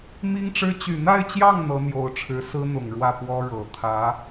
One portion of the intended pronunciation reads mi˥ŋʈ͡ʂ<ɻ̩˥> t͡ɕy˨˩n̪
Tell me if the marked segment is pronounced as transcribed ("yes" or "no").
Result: yes